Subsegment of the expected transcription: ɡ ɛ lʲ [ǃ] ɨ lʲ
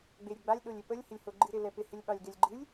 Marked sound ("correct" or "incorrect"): incorrect